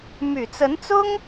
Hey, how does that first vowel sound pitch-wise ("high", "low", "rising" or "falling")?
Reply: low